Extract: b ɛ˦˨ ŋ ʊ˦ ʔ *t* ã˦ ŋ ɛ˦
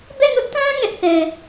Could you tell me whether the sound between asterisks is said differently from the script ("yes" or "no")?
no